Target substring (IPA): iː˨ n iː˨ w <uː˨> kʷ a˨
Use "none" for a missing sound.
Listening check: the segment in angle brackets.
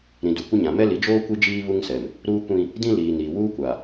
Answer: uː˦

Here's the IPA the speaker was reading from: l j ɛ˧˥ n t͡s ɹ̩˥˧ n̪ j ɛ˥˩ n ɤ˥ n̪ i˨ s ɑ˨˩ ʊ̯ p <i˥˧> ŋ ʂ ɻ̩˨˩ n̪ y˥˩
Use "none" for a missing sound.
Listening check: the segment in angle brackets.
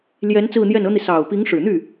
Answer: i˧˥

